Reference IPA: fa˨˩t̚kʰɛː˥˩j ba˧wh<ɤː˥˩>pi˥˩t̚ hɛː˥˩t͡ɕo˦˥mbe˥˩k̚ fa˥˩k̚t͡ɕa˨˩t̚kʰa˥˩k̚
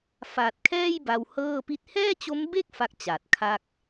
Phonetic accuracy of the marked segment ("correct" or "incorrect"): correct